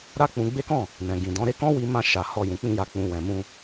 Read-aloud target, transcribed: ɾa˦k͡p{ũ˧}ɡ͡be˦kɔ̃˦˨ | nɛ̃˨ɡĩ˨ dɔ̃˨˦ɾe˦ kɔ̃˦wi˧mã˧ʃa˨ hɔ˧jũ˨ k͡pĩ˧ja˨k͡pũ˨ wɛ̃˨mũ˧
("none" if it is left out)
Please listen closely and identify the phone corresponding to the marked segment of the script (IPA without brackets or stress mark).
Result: ũ˧